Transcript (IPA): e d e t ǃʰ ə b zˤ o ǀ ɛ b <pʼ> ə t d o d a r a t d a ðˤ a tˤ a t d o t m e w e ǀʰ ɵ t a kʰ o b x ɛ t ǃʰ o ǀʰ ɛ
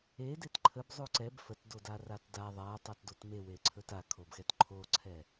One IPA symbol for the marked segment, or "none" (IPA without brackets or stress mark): f